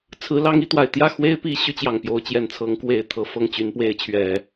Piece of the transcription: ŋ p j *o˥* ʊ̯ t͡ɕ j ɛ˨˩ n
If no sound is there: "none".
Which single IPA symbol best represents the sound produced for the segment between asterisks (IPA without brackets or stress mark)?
o˧˥